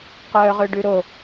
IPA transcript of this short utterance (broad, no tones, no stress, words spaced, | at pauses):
qœːʁøɖʉɾo